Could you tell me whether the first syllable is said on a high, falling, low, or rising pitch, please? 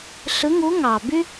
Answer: rising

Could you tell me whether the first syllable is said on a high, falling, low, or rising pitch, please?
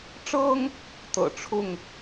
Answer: high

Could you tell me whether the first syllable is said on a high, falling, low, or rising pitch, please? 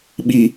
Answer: low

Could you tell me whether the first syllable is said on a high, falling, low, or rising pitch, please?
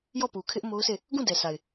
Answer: falling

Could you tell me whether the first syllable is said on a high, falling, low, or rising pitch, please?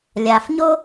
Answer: low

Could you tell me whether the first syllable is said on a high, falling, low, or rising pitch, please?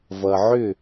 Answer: low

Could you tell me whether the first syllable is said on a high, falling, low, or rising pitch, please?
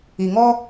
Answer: low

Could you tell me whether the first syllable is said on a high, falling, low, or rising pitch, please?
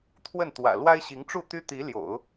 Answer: falling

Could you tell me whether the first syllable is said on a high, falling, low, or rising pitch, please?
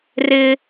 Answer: high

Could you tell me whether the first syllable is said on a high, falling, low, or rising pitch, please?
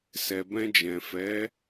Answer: low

